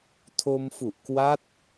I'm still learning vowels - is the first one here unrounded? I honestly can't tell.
no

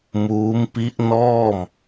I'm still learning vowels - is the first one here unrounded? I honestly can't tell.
no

